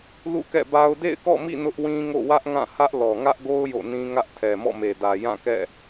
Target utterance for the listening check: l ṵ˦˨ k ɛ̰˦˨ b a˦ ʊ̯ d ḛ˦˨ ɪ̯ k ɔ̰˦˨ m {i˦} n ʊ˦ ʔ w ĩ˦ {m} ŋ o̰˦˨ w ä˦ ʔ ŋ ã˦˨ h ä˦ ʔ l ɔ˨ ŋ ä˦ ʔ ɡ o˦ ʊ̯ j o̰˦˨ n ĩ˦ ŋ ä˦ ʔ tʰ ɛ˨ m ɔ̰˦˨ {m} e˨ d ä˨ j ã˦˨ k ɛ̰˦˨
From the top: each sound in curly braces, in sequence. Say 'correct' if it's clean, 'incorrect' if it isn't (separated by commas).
incorrect, incorrect, correct